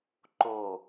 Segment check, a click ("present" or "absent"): present